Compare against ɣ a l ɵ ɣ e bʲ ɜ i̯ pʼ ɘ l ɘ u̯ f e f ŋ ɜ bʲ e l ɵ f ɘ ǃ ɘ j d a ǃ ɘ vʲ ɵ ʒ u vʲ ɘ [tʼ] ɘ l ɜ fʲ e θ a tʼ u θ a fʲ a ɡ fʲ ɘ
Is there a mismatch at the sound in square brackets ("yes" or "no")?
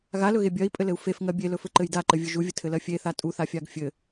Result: yes